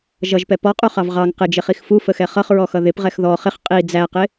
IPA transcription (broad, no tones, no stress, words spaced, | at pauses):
ʒʌʒpɛ pɔqʼuχɑv ʁɑŋ qɪd͡ʒɪχix fufəxɛ χʌχɹɔxʌ ðɪpʁɛx ðɔ χɪχ qʼi d͡zæqɪ